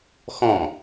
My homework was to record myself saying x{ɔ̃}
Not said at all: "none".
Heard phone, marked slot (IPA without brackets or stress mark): ɔ̃